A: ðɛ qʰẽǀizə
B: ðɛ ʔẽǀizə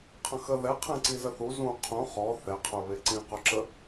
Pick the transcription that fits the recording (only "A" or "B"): A